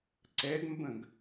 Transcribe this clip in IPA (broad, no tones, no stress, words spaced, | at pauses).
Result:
ǀɛɡmbə̃ɡ